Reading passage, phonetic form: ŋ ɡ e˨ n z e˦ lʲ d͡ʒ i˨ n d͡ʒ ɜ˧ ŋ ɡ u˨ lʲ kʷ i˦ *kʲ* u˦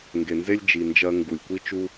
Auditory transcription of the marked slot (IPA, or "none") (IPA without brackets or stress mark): t͡ʃ